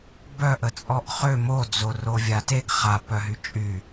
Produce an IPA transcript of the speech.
b œ ʔ ə t͡sʼ ɔ ʔ χ ø m o d͡z o r o vʲ a t e ɡ χ a p œ ɦ y t͡ʃʼ y

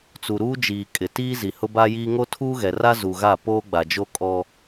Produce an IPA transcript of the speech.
t͡s u˨ ɾ uː˦ d͡ʒ iː˨ kʼ ɪ˨ t iː˦ z i˨ h ʊ˦ b aː˦ j iː˦ ŋ o˦ tʰ uː˦ ɣ ɛ˨ r a˦ z u˨ ɣ a˦˨ p oː˦ ɡ͡b a˨ d͡ʒ o˦ kʼ ɔ˦

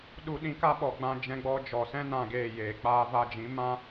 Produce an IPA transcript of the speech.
ɗ u˧ ɗ ĩ˧ k a˦ ɓ ɔ˨ ɡ͡b ã˧ d͡ʒ ɛ̃˧ ɡ͡b ɔ˧ d͡ʒ ɔ˨ s ɛ̃˦ n ã˧ ɡ eː˦˨ j eː˨ k͡p aː˧ v a˧ d͡ʒ ĩ˨˦ m ã˦

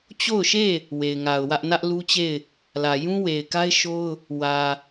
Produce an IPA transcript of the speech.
t͡ɕ o˦˨ ʊ̯ ʃ e˦˨ | w e˨ ɪ̯ ŋ a˨ ʊ̯ w ä˦ ʔ n ä˦ ʔ l u˦ t͡ɕ e˦˨ ɪ̯ | l ä˨ j ũ˦ w e˨ ɪ̯ k a˦ ɪ̯ ʃ o˦ ʊ̯ | w ä˨

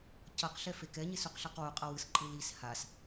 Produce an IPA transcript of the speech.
c ʌ q ɬ ɛ f e k ɛ ɲ e s u q ɬ a q w u qʼ ʌ w ɯ s ǃʼ ɯ l i s h a s

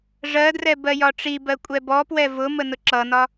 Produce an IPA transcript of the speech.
ʐ ɜ d r ɛ b ɜ j ɒ ʈ͡ʂ i b ɜ kʷʼ ɛ b ɔ p w ɛ v ʊ m ə n ʊ ǁ ʌ n ɒ

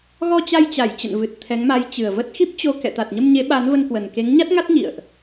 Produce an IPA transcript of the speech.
ɣ ɔ˧ t͡ɕ a˧ j t͡ɕ a˧˩ j t͡ɕ ə̰˧˨ n v ɨ˨˩ t̚ t̪ʰ ɛ˨˦ ŋ m a˨˦ j t͡ɕ ɨ˨˩ ə̯ v ə˦˥ t̚ x i˦˥ p̚ t͡ɕ o˧ k ɛ̰˧˨ t̪ a˨˩ t̚ ɲ ə˧ m ɲ e˨˦ ɓ a˨˦ n v ə˧ n k w ə˨˩ n k e˨˦ ŋ ɲ a˦˥ t̚ ŋ a˦˥ t̚ ɲ ḭ˧˨ ə̯ ʔ

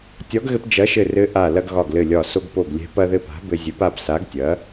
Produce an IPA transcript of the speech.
tʲ ɒ˨˥ ɡ ɣ ɘ˧ p d͡ʒ ɐ˨˥ ʃ ɘ˧˩ r ɘ˨˥ ʔ a˧˩ l ɐ˧ ɡ ɣ ɒ˧˩ ɡ l ɘ˧˩ lʲ ɒ˧˩ s o˧ ɡ p o˧˩ ɡ lʲ ɛ̤˨˥ p ɐ˧ ð ɘ˧ p a̤˨˥ b ɘ˧ zʲ ɘ˨˥ p a˧ p s a˨˥ ɡ tʲ ɐ˨˥

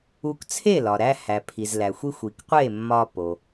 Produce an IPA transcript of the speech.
u˧ k t͡sʰ e˥˩ l ɒ˩ ɾ æ˧ h æ˩ pʰ i˩ z l æ˩ xʷ i˧ xʷ i˩ k qʷ e˥˩ mː ɒ˧ p o˩

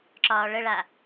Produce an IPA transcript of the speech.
ǁ ɒː ɭ ə ɭ a

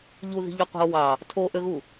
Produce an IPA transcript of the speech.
ʎ u ð i̤ ʎ u qʷ e̤ o̯ w ɑ | tʰ o ʔ ø ɣ u

